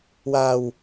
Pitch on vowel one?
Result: low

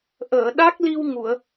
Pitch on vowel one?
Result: low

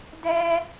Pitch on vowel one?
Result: high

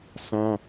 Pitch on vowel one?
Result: high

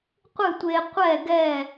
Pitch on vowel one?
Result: falling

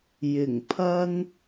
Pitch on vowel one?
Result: low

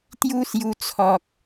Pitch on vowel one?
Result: high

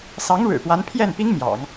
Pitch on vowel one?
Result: rising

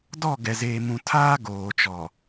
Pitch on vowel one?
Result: falling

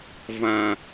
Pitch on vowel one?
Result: low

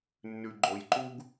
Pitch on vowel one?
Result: low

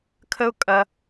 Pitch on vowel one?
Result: high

